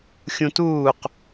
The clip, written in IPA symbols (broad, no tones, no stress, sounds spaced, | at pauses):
xʲ ũ t uː q